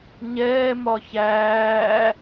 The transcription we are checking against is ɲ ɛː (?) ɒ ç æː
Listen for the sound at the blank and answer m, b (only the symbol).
m